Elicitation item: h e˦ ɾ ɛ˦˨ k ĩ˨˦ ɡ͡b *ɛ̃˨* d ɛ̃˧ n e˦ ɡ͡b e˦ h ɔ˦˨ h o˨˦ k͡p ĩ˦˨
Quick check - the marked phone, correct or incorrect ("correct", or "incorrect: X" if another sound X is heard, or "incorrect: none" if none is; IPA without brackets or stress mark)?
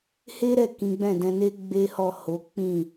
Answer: incorrect: ɛ̃˦˨